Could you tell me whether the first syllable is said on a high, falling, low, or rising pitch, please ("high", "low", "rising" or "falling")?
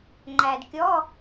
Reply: low